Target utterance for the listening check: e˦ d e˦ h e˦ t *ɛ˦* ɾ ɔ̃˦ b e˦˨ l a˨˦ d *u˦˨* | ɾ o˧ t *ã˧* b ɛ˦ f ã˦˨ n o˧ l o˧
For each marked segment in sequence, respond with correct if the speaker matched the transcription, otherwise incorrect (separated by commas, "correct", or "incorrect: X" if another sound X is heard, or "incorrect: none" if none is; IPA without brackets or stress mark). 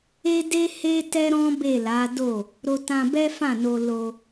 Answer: correct, incorrect: o˦˨, correct